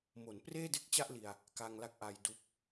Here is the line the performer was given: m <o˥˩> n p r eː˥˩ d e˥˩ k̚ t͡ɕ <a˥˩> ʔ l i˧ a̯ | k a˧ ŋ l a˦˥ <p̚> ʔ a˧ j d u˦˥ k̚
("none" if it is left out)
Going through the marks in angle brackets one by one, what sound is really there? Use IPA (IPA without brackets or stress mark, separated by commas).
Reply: o˩˦, a˥˩, k̚